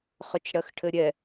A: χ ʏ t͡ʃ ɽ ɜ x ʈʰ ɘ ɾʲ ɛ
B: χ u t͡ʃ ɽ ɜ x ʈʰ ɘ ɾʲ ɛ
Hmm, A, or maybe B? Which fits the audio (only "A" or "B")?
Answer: A